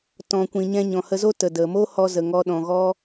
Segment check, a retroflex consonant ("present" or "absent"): absent